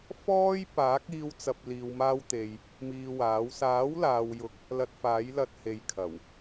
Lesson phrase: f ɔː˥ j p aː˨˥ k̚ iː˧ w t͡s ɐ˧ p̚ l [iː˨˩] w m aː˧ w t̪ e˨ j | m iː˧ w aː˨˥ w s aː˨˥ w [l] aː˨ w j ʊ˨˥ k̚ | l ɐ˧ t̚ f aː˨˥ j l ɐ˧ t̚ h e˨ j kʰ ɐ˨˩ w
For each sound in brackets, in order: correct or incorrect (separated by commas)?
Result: incorrect, correct